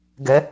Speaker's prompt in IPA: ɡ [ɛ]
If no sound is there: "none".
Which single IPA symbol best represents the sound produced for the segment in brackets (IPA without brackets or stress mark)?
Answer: ɛ